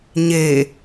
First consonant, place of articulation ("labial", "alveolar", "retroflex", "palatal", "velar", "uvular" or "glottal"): palatal